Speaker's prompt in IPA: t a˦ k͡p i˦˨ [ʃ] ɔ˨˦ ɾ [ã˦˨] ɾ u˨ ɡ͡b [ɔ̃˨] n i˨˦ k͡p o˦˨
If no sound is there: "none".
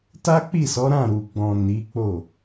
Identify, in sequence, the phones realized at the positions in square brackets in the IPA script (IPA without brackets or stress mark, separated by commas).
s, ã˦˨, ɔ̃˨